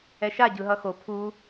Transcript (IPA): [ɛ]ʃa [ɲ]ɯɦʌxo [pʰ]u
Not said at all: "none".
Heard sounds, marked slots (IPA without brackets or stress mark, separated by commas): ɛ, ɟ, pʰ